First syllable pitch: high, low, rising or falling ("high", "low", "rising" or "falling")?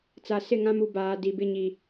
low